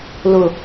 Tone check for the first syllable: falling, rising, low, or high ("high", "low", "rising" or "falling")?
low